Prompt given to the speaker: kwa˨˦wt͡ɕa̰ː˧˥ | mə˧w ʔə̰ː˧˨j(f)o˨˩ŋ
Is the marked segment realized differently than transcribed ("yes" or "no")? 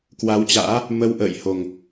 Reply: yes